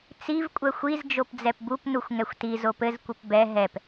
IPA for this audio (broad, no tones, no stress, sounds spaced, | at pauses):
t͡s i v kʷʼ ɛ xʷ i z d͡ʒ o p d͡z ɛ p b u p n u xʷ ŋ ɛ xʷ t i z o p ɘ z kʷ ɘ p b ɛ ɦ ɛ p